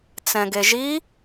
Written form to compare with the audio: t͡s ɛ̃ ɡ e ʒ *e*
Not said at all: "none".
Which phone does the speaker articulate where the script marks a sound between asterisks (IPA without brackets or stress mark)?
i